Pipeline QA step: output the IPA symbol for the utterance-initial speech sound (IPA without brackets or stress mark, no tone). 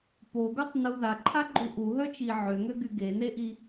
p